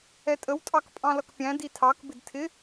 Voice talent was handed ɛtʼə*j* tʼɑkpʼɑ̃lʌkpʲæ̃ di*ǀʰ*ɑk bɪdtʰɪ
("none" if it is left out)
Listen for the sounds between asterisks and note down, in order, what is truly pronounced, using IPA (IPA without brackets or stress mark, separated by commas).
w, tʰ